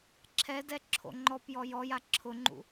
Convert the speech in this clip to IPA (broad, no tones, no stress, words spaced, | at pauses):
ǁʰɛdɛ ǁʰo̰ŋ͡ǃɔpjɔ jɔja ǁʰʊŋ͡ǃṵ